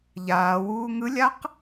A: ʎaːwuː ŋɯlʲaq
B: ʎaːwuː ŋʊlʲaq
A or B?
A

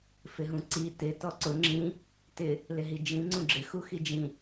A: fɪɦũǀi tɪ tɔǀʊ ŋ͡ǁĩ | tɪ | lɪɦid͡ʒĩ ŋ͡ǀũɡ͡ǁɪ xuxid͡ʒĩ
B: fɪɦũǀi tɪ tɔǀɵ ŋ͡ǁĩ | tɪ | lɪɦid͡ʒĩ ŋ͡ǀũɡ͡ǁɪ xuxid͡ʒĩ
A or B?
A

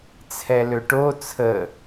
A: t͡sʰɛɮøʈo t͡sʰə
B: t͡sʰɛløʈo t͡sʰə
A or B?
B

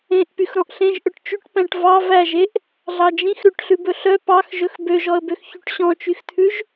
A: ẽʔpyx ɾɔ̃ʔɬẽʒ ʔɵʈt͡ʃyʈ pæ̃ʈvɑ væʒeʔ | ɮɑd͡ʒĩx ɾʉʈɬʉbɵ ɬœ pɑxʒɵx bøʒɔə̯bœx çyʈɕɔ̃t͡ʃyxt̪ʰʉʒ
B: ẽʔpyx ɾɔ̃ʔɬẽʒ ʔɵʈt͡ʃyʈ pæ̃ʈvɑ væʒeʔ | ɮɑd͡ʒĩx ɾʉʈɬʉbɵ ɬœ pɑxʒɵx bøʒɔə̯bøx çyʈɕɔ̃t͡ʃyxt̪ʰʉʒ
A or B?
B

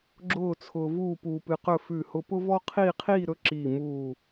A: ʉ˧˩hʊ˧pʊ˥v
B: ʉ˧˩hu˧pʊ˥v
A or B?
A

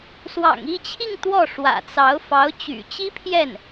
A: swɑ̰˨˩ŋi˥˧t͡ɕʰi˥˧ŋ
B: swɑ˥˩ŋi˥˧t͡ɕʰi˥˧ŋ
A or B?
A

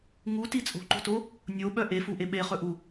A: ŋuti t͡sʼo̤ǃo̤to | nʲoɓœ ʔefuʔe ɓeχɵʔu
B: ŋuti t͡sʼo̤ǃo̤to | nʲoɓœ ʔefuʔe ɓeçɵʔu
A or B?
A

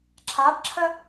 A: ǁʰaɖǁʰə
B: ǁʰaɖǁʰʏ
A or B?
A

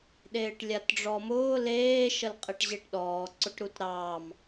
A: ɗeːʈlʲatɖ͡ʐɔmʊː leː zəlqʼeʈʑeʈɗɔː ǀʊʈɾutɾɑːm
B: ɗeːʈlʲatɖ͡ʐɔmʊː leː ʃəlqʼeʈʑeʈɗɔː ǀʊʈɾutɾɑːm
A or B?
B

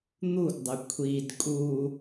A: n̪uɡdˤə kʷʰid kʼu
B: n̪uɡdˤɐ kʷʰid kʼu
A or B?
A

